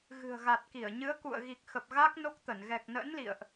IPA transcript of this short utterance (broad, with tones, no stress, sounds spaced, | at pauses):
ɣ ɨ̤˨˩ ə̯ ɣ a˨˩ t̚ k i˧˩ ə̯ ɲ ɨ˨˦ ə̯ k ṵ˧˨ ə̯ ɣ i˨˩ k̚ x ə˨˩ p̚ ɣ a˦˥ k̚ n o˦˥ k̚ t̪ ə˧˩ n ɣ ɛ˨˩ k̚ n ə̰ː˧˥ n l ḭ˧˨ ə̯ ʔ